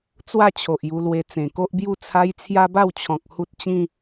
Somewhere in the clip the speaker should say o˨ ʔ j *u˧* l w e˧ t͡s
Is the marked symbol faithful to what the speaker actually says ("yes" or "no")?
yes